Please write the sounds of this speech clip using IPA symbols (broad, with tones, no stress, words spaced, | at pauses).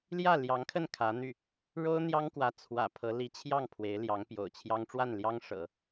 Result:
ljä˥˩ljɑ˧˥ŋkʰə˥˩n kʰä˧˥n̪y˥˩ | ɻo˥ʊ̯n̪jɑ˥ŋkwä˧˥ t͡sʰwä̰˨˩pʰɤ˧˥ li˧˥t͡ɕʰjɑ˥˩ŋ pʰwe˧˥ɪ̯ljɑ˧˥ŋpjo̰˨˩ʊ̯t͡ɕʰjɑ˥ŋ ʈ͡ʂwa˥˩nljɑ˥ŋʂɤ̰˨˩˦